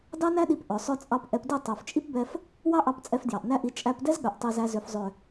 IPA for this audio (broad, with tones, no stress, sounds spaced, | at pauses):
d ɑ˦ n æ˦ ɗ i˧ p ʔ œ˨ sˤ œ˦ t͡sʼ ɑ˦ p ʔ ɛ˧ p d i˦˨ tˤ œ˨ f t͡ʃʼ i˦ p b ɛ˧ f | w ɑ˦ ʔ ɑ˧ p t͡sʼ ɛ˧ f d j ɑ˨ ʔ n æ˦ ʔ i˧ t͡ʃʼ æ˧ p d ɛ˦ z ɠ œ˨ ʔ tˤ i˧ z æ˧ z ø˨ f zˤ ø˨